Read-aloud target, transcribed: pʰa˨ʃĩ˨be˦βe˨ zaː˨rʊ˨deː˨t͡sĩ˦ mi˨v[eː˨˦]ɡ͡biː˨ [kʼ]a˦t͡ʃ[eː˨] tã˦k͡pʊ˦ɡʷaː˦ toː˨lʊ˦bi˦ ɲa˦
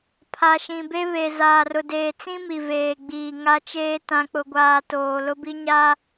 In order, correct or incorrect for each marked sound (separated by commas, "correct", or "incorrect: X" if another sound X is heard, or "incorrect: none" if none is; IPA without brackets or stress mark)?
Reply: incorrect: eː˨, incorrect: ŋ, incorrect: eː˦